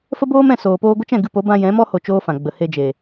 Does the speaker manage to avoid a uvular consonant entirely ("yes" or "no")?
yes